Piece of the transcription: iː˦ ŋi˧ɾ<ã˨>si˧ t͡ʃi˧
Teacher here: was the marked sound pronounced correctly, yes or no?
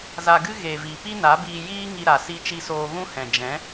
no